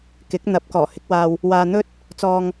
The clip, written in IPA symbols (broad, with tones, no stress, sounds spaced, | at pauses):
k ɪ˨˥ k̚ n̪ ɐ˨˥ p̚ k ɔː˨˩ h ɪ˨˥ k̚ w aː˧ w | w aː˧ n̪ ɵ˥ t̚ | t͡s ɔː˧ ŋ